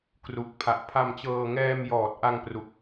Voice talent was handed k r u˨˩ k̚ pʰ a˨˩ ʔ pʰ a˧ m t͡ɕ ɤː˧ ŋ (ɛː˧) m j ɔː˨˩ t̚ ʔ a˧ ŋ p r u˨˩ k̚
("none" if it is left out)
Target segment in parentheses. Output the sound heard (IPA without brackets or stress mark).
ɛː˧